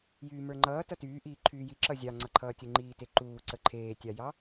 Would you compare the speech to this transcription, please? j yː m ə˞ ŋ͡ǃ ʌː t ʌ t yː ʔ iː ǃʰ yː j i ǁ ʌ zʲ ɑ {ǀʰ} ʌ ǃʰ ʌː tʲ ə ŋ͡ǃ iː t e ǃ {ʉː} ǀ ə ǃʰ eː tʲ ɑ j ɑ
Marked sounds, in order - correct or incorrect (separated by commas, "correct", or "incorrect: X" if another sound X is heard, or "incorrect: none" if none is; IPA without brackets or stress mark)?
incorrect: ŋ͡ǀ, incorrect: uː